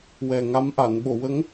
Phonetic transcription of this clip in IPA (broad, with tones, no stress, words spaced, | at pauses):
wɛ˨˩ŋa˧˥mʔa˨˩˨n ɓo˨˩˨wə˧˥ŋ